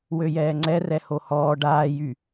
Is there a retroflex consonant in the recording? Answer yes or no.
yes